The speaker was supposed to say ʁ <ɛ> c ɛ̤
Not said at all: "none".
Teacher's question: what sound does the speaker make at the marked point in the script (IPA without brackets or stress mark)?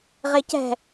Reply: e